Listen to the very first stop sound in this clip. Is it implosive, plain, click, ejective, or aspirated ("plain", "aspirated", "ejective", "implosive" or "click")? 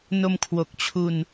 aspirated